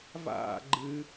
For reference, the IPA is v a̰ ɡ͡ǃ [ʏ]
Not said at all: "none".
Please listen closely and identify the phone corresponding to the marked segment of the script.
ɨ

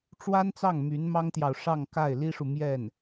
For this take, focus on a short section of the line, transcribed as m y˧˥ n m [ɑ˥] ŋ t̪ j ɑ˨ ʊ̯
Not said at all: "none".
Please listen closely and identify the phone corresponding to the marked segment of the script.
ɑ˥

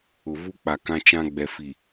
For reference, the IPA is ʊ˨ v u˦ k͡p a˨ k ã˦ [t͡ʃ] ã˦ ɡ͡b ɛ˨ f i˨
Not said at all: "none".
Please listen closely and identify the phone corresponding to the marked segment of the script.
t͡ʃ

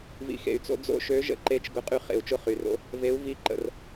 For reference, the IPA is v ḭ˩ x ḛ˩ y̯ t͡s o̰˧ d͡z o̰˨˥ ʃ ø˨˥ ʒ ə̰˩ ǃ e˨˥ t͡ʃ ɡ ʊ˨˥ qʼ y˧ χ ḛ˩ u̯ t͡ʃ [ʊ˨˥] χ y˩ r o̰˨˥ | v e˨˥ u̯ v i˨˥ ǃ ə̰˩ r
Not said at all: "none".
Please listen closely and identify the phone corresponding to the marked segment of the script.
ʊ˧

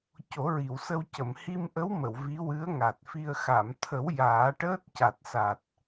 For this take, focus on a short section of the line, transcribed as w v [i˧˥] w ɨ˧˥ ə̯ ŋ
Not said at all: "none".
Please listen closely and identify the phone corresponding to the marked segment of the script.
i˧˥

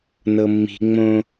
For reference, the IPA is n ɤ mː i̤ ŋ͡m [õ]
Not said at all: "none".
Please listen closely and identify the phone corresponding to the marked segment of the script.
õ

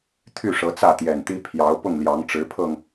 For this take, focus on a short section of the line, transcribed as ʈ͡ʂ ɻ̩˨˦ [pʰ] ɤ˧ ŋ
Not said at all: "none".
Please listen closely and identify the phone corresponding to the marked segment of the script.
pʰ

